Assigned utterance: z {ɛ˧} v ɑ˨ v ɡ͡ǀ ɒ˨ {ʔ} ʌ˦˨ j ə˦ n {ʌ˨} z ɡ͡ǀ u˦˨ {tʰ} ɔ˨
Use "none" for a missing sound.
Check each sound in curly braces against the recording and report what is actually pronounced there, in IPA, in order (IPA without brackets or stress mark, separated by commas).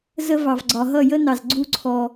ə˧, ɦ, ɑ˨, ǀʰ